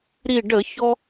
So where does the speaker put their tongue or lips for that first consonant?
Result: tongue tip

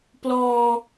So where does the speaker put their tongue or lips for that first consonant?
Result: lips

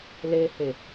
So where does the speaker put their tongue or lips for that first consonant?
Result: tongue tip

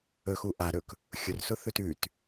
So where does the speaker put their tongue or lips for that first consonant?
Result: velum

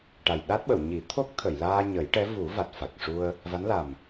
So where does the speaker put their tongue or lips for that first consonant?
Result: retroflex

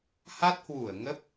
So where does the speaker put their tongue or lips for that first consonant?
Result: throat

